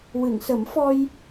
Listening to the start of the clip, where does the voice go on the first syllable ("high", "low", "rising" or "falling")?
low